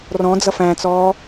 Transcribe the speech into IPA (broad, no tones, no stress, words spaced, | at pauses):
rɔ̃ d͡zʌfæ̃t͡sɔː